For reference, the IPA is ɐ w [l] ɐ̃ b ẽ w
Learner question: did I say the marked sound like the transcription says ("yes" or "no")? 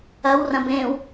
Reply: no